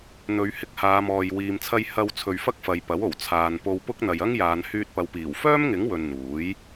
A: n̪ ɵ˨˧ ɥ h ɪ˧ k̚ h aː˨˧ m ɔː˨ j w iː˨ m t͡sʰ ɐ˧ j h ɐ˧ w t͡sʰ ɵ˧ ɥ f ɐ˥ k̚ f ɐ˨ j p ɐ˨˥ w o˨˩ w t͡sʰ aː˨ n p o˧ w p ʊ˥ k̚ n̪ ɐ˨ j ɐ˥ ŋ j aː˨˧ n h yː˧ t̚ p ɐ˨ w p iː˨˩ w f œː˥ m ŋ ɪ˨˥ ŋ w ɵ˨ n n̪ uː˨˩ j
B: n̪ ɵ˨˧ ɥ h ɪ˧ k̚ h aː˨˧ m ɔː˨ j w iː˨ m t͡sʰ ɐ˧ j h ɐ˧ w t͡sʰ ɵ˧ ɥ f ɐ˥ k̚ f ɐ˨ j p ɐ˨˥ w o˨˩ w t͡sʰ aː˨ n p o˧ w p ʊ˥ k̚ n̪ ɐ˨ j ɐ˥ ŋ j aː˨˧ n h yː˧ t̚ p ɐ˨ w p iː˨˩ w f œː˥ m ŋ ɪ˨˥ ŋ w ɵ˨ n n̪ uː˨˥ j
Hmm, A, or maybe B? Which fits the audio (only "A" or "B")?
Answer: B